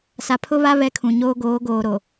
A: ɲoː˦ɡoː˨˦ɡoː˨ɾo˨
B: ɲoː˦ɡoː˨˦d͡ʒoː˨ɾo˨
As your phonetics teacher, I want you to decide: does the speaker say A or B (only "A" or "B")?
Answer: A